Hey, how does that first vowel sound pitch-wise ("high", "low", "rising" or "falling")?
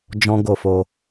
high